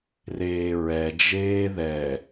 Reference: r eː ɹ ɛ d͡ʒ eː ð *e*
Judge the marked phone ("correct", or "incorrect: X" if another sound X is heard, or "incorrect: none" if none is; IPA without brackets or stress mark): incorrect: ɛ